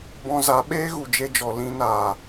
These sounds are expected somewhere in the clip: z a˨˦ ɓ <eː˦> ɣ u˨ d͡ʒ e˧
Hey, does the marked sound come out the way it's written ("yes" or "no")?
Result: yes